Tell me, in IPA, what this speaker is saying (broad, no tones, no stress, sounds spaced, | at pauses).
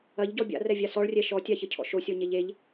ɐ ʎ ɟ ɔ bʲ a̰ r ɛ vʲ a s ɔ ɭ rʲ ɛ ʃ ɔ tʲ a ç ə cʰ ɔ̰ ʃ o sʲ ɔ ɲ e ʎ e ʎ